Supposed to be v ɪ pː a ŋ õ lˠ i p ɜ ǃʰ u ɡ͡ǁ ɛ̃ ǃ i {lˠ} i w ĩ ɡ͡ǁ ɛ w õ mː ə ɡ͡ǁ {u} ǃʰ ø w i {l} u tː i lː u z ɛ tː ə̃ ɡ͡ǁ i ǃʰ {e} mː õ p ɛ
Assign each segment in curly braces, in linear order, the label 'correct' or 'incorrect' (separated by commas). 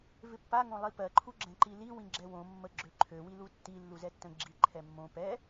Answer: incorrect, incorrect, correct, incorrect